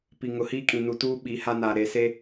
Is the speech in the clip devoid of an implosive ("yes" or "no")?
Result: no